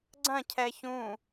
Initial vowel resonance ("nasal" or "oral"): nasal